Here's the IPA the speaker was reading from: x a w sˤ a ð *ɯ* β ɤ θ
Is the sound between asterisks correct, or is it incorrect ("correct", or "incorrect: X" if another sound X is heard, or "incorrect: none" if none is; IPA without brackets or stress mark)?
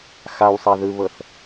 correct